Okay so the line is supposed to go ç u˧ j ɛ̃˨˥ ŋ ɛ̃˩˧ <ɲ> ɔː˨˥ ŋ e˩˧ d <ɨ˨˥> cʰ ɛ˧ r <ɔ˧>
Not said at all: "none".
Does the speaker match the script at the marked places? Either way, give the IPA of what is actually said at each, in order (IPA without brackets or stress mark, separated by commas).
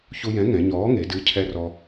ɲ, ɨ˨˥, ɔ˧